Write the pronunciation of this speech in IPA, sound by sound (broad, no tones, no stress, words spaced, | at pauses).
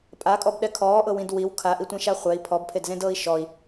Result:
pʼakʼɔbɗɛ kʰɔːʔɤwĩd wiw kʰaʔitʷẽʃa χʷɛi̯ pʰɔbpʰedzẽdɤːi̯ ʃɔi̯